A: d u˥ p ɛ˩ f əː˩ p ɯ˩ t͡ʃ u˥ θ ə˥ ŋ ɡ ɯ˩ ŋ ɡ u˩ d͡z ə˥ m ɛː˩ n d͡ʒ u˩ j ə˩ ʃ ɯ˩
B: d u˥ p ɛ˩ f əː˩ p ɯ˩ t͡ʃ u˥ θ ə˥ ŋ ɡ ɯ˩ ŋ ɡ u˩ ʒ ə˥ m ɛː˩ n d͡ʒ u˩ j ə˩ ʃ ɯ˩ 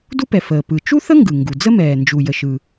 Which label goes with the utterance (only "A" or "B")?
A